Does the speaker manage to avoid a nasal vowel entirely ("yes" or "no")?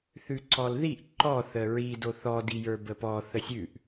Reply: yes